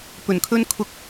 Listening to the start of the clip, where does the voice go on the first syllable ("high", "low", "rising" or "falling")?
low